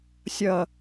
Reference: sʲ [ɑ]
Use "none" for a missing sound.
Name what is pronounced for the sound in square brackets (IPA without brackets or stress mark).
ʌ